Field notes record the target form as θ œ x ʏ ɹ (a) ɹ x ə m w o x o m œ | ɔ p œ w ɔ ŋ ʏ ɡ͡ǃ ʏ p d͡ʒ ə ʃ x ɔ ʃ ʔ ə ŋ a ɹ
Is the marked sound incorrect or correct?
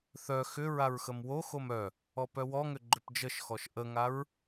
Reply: correct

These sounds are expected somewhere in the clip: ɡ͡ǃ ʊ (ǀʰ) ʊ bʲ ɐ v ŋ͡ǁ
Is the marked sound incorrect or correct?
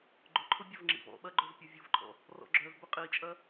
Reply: incorrect: ǃʰ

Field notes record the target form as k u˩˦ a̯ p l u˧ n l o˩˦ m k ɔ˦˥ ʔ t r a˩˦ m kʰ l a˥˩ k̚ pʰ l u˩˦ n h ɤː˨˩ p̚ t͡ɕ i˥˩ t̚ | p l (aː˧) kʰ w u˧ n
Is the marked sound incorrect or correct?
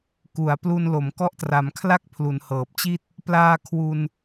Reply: correct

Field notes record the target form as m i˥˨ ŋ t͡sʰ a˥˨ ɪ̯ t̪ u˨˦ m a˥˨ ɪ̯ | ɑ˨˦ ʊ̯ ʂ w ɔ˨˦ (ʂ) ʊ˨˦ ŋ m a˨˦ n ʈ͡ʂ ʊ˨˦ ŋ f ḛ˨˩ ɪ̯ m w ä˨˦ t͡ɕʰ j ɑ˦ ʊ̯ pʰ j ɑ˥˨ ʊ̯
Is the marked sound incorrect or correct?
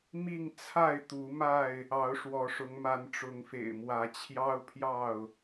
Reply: correct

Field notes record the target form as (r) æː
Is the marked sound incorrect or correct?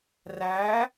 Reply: correct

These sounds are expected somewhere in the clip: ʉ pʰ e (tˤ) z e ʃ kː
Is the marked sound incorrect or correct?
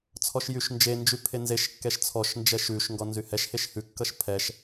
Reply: incorrect: n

